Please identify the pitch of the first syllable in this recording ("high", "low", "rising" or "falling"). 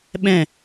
falling